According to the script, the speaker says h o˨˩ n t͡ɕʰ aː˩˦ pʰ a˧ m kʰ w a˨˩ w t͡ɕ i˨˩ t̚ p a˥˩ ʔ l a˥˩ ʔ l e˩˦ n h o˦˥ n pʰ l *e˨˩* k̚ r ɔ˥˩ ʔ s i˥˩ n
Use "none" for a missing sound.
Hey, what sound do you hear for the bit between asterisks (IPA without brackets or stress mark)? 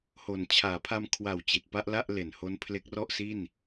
e˦˥